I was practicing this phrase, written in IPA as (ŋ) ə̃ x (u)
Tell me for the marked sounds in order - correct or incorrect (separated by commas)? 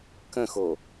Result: incorrect, incorrect